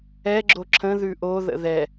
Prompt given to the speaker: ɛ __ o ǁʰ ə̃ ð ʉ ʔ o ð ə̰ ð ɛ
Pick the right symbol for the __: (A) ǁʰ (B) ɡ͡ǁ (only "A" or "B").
B